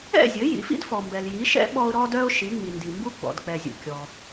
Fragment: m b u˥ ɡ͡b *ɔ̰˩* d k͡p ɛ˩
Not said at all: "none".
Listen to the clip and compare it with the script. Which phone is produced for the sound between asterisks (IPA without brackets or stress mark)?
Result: ɔ̰˩